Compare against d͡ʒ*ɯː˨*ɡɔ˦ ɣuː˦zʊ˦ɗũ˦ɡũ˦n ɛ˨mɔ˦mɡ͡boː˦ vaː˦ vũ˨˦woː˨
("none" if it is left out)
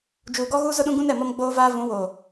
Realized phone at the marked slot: uː˨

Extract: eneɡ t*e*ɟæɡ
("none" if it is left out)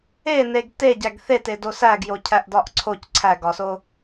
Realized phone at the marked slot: e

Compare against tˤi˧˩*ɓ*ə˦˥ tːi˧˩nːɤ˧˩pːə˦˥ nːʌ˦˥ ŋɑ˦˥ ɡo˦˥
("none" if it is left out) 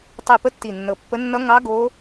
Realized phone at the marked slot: p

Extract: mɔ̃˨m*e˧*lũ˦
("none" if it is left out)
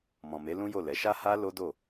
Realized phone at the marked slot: e˨˦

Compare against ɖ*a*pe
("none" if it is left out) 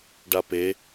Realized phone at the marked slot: a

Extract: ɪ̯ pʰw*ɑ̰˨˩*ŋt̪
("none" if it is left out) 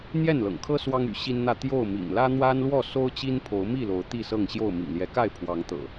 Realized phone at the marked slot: ɑ˨˦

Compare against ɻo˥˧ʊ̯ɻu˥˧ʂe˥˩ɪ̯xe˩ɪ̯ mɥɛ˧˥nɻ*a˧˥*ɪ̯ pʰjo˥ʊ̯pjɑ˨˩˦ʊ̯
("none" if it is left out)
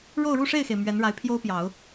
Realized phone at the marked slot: a˧˥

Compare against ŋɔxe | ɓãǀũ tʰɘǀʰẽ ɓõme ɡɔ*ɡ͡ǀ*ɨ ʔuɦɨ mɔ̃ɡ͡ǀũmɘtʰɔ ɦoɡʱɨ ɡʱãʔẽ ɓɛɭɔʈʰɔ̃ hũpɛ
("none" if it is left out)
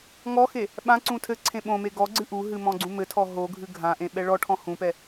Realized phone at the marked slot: ɡ͡ǀ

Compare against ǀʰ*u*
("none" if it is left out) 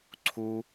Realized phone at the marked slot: u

